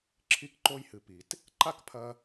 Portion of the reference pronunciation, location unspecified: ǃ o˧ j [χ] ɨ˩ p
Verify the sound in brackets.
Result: incorrect: h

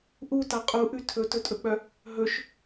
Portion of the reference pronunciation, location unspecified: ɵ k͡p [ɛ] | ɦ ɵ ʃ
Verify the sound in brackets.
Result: incorrect: œ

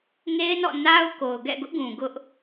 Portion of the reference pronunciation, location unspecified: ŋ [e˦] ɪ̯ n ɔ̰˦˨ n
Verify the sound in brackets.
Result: correct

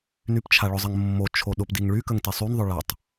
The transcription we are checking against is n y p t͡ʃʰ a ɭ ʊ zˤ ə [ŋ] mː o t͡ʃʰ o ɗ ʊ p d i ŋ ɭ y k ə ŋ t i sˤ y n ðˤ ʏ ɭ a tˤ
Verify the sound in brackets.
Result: correct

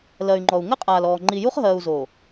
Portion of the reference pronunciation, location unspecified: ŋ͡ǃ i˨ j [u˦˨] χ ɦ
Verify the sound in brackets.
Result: incorrect: u˦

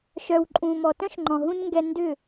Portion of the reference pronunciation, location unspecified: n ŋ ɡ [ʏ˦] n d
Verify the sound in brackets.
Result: incorrect: ɛ˦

